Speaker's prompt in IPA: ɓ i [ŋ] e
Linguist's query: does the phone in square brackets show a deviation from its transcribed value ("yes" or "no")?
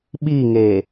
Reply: no